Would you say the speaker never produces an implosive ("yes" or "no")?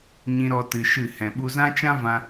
no